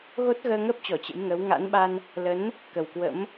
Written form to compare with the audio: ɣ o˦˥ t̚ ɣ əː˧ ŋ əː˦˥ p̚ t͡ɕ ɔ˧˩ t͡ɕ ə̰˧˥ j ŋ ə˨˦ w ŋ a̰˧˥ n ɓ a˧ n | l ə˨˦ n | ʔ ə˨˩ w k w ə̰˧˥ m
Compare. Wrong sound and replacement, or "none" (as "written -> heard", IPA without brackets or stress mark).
ʔ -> k